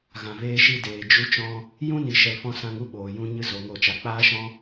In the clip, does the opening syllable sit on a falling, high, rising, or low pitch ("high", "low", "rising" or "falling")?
low